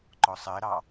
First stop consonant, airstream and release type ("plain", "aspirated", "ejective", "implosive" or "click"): click